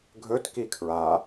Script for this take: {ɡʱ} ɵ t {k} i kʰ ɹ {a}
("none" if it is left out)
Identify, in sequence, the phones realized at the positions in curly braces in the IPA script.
ɡʱ, k, a

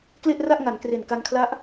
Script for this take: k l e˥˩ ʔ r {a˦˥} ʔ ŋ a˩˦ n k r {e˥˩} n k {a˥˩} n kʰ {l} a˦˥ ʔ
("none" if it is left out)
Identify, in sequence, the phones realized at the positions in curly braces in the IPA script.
a˥˩, e˨˩, a˧, l

